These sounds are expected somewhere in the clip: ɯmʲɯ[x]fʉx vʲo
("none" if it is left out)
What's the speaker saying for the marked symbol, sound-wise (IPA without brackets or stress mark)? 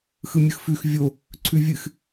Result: x